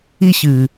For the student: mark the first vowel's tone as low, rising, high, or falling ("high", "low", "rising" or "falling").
falling